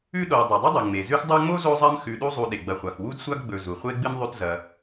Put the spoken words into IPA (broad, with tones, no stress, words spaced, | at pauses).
ʉ˦ɗo˨w dˤʉ˩dˤo˥dˤɨ˩ŋ͡me˩ zʉ˦xdˤu˦ŋ͡mo˥ zo˦zˤɐ˦m xʉ˨ɗu˦zˤu˨ ɗe˩ɡ͡bɐ˨χʷa˩x wu˥dsʷa˥ɡɡ͡bɵ˨ zu˩ χʷe˥ɡ͡bɨ˥mðˤʉ˦t zɐ˨